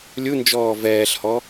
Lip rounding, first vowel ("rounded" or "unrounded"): rounded